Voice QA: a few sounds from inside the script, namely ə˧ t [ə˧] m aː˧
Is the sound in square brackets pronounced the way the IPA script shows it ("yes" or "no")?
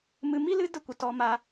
no